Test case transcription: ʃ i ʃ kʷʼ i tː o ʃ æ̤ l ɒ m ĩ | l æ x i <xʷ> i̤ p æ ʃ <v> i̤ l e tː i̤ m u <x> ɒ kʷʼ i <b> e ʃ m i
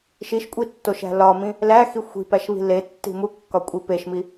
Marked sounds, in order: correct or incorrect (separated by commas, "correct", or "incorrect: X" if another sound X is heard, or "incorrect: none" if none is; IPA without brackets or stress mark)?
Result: correct, incorrect: β, incorrect: kː, incorrect: p